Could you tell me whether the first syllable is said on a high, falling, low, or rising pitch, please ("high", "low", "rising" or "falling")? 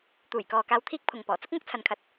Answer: low